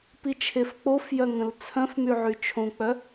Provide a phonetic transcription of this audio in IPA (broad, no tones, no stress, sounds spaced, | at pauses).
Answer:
p i t͡ʃʰ e f k͡p o f j œ ŋ ə̃ l t͡sʰ œ̃ f m y ʕ y t͡ʃʰ õ k͡p œ